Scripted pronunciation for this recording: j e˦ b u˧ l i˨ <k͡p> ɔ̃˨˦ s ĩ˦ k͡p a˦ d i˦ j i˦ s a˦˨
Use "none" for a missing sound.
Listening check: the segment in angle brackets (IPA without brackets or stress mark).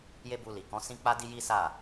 k